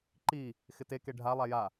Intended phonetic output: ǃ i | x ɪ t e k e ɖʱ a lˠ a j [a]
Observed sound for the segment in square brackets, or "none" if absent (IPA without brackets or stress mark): a